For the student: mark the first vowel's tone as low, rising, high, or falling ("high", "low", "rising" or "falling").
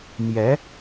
rising